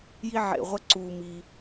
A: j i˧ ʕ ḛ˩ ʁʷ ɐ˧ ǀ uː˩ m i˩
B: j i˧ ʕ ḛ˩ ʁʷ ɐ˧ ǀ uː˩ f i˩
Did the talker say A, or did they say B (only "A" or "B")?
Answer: A